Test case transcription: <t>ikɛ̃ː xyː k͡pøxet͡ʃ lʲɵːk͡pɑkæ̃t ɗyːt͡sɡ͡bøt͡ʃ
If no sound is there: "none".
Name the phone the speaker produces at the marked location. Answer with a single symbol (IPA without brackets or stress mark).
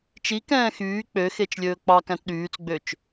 t͡ʃ